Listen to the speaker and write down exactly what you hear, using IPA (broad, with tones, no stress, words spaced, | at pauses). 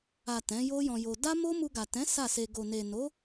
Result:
a˨ tɛ̃˨˦jo˦jɔ̃˧jo˧ da˦mo˦ mu˧ɡa˨tɛ̃˨˦ sa˦˨se˧ ɡo˨ne˨ no˨˦